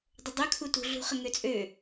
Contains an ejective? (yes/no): yes